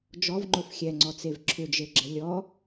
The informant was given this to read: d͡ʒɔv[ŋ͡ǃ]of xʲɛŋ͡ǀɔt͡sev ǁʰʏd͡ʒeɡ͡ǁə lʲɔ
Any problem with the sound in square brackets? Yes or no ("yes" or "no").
no